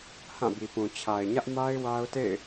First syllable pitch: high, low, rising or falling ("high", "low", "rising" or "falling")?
falling